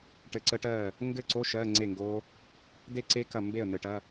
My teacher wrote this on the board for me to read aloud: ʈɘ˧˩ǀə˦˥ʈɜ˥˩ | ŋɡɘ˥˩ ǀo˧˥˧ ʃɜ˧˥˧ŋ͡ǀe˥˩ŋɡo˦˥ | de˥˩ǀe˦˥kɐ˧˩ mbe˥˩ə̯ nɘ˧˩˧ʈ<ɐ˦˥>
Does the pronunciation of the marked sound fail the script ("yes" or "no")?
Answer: yes